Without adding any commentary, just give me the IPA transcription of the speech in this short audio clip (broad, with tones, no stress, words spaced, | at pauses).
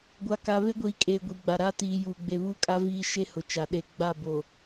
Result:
ɡʷa˨ ka˨ βe˦ɡʷiː˨kʼeː˨ ɡʷi˨ɡ͡ba˨ɾaː˦ tiː˨juː˨ ɡ͡be˨βuː˦kʼa˦ viː˦ ʃe˦hʊ˨t͡ʃa˨ ɗe˨ɡ͡ba˦˨bo˨